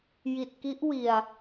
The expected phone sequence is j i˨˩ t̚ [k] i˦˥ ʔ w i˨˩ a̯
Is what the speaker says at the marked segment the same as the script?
yes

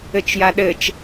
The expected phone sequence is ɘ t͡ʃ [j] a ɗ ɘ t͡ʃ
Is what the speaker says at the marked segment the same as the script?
yes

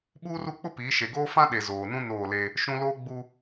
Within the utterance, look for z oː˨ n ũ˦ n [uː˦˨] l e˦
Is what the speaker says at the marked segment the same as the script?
no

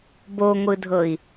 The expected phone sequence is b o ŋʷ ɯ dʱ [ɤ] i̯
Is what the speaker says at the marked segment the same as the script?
yes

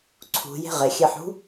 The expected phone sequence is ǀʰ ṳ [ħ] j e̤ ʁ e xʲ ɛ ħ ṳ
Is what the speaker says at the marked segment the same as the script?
no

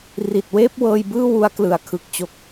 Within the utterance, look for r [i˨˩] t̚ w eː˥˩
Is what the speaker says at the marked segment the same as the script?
yes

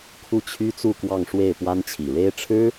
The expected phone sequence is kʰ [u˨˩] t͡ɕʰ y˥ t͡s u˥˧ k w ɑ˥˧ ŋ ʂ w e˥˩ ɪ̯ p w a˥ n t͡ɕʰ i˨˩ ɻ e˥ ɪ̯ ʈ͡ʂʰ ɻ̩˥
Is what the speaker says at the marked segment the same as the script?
no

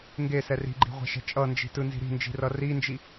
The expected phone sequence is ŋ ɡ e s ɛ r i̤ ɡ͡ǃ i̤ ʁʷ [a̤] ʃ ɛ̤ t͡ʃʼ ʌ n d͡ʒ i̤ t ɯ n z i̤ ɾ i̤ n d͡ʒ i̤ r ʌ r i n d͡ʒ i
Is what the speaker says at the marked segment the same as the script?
yes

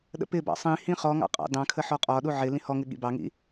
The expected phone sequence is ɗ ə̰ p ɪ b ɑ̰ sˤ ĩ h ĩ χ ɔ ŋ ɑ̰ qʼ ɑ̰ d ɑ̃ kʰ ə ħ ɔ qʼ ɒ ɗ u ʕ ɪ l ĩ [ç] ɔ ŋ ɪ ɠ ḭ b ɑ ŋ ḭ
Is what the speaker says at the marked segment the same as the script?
no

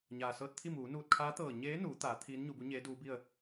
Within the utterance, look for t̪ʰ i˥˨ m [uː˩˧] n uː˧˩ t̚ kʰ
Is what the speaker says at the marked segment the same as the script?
yes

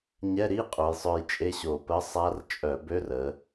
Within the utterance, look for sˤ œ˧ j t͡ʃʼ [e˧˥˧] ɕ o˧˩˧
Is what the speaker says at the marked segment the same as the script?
yes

